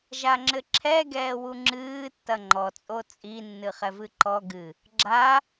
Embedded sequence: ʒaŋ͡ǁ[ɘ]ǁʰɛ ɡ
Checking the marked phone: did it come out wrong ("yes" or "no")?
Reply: no